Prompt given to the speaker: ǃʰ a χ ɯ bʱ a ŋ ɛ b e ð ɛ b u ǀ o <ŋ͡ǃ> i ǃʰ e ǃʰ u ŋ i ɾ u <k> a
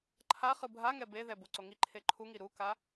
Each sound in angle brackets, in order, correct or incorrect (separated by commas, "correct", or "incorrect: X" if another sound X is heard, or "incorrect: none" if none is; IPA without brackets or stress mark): incorrect: ŋ, correct